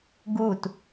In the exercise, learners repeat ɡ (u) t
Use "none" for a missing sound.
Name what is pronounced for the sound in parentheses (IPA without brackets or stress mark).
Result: u